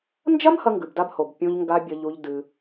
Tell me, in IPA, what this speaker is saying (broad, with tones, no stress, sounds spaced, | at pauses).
n d͡ʒ ɐ˦ m h ɐ˦ ŋ ɡ ʉ˨ b d a˦ b h o˨ b pʲ õ˦ ʎ ŋ ɡ a˦ bʲ ɐ˦ ʎ u˦ ʎ d ɨ˦